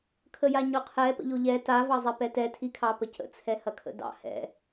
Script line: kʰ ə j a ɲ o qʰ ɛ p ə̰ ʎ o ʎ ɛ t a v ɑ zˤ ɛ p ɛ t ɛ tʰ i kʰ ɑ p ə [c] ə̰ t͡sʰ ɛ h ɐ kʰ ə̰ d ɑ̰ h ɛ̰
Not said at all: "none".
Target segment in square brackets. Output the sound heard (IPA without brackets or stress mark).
c